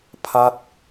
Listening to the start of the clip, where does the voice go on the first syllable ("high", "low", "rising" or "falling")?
falling